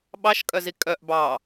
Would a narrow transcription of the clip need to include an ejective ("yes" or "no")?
yes